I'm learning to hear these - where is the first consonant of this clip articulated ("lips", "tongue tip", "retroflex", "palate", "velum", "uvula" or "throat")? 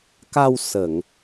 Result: velum